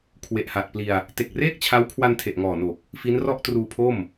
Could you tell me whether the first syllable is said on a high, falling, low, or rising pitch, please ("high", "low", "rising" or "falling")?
low